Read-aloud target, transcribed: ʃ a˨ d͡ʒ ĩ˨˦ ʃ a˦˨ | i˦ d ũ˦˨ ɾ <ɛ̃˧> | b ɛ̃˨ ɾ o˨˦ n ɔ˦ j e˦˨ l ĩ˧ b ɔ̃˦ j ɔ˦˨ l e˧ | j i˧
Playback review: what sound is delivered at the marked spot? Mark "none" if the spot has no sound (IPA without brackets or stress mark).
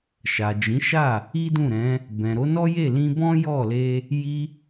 ɛ̃˨˦